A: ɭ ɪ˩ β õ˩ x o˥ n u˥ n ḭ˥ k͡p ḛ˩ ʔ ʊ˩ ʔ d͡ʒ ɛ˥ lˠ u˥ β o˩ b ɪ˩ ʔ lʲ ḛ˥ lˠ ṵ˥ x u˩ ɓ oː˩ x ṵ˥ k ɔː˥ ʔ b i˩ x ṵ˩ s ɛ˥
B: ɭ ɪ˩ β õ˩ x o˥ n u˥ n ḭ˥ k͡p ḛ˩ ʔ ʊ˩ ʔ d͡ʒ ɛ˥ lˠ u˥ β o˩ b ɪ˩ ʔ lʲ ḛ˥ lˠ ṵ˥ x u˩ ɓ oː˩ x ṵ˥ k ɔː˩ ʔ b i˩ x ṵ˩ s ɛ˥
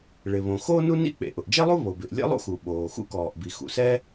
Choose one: B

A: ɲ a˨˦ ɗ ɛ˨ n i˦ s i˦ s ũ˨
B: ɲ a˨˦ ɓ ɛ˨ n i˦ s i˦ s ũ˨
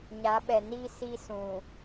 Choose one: B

